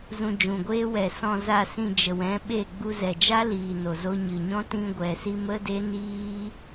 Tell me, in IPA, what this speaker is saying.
z ũ˧ d͡ʒ ũ˨ ɡʷ eː˦ w ɛ˨ s ɔ̃˨ z a˨ s ĩ˨ d͡ʒ ə˨ w ɛ̃˨˦ ɓ e˦˨ ɡ͡b u˧ z ɛ˨ d͡ʒ a˦ l iː˨ n o˨ z o˧ ɲ ɨ˨ ɲ ɔ̃˦ t ĩ˧ ɡʷ ɛ˨ s i˧ m ə˦ d e˦ n iː˦

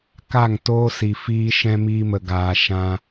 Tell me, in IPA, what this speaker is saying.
k a˦˨ ŋ t oː˦ s i˨ f iː˦ ʃ ɛ̃˧ m iː˧ m ə˨ ɡ aː˨ ʃ ã˧

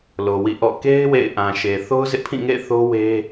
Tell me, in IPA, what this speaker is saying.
l o˨ w ḭ˦˨ ʔ ɔ̰˦˨ k e˦ ɪ̯ w ḛ˦˨ ɪ̯ ʔ ã˨ ʃ e˨ θ o˦ ʊ̯ z ɪ˦ ʔ pʰ ĩ˦˨ ŋ ḛ˦˨ ɪ̯ θ o˦ w e˦

